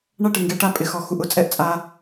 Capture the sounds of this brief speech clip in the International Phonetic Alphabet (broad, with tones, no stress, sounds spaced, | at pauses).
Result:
ɳ a˦ ʈ ɪ˨ ŋ ɡ ɛ˨˦ ʈ a˧ pʼ ɪ˨ x ɔ˨ x u˨ ʔ ʊ˨ t͡sʼ ɛ˦ ʔ t͡sʼ a˧